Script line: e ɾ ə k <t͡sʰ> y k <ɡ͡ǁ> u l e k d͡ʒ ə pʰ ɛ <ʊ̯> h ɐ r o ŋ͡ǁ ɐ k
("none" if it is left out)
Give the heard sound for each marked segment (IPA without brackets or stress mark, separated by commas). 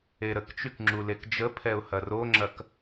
t͡ʃ, ŋ͡ǁ, ʊ̯